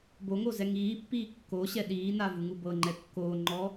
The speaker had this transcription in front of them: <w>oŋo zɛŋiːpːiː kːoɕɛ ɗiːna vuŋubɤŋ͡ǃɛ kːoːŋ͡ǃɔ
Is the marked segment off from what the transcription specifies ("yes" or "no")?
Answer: yes